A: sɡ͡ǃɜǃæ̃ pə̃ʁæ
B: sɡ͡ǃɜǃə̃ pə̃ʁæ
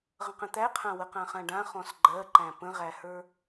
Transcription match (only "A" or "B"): A